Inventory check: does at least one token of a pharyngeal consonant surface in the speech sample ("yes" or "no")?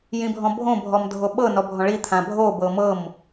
no